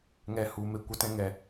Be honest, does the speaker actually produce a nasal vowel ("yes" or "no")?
yes